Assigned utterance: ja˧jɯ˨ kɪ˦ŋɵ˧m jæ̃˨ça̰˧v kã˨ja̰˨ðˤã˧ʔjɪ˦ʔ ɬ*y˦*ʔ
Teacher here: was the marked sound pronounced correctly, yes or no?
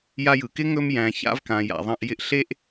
no